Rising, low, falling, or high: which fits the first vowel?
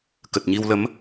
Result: low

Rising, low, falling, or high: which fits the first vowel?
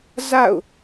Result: falling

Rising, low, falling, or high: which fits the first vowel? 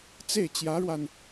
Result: falling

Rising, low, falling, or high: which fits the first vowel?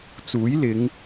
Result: rising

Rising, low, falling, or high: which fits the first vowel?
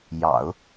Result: low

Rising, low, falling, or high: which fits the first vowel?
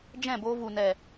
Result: falling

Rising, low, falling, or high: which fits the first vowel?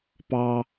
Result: high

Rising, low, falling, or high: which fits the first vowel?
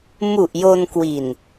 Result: low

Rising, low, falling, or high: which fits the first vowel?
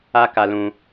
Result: high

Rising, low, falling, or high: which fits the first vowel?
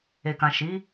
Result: low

